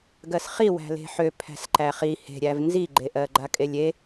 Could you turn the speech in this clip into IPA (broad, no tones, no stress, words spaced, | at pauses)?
ɡɜsχi wæ̤le̤ħø pʰæ̤sǃæχi he̤ɾʲæv nziɡ͡ǃeʔɜ ɡ͡ǃakʼelʲe